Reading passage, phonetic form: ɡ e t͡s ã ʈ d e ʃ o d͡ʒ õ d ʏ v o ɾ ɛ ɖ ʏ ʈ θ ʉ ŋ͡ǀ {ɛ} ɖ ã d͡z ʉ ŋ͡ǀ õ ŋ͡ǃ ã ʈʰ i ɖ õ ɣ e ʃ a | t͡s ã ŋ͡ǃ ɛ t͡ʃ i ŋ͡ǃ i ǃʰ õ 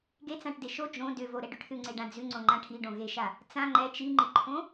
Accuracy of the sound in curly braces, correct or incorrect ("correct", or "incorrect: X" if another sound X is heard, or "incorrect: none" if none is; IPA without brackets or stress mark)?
incorrect: e